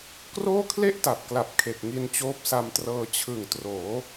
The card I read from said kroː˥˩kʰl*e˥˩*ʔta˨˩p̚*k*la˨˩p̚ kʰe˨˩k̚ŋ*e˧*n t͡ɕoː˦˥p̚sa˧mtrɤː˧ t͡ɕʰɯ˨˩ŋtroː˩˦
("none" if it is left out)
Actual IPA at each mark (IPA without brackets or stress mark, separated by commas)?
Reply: e˥˩, k, i˧